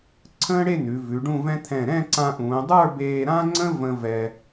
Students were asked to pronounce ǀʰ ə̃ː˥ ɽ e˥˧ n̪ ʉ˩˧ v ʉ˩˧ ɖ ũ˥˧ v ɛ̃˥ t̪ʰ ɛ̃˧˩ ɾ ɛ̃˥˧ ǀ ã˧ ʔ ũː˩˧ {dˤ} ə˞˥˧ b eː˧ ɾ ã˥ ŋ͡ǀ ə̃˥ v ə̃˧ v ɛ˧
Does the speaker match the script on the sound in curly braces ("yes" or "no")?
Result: yes